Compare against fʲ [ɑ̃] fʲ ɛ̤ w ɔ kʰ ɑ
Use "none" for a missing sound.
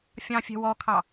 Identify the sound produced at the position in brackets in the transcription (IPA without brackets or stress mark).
ɑ̃